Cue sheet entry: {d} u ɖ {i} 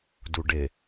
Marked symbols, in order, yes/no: yes, no

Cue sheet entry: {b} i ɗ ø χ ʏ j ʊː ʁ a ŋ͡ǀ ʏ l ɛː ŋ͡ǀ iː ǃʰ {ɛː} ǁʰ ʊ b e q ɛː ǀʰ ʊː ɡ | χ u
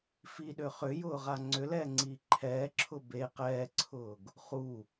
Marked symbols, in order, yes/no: no, yes

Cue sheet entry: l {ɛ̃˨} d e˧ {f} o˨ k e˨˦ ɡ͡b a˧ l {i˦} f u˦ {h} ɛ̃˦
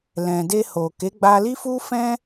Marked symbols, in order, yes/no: yes, no, yes, no

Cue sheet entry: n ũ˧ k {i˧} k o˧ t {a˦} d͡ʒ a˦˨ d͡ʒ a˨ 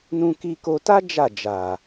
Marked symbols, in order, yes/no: yes, yes

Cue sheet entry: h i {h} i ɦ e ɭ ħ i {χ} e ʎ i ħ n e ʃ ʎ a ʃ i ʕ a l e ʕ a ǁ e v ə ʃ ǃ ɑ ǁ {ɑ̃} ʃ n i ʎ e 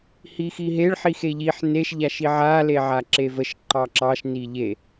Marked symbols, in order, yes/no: no, no, no

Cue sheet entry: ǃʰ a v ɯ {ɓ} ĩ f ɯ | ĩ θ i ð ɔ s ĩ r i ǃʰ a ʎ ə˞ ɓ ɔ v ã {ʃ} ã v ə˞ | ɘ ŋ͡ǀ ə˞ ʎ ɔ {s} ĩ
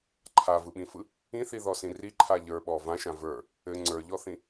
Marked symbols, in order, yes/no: yes, yes, no

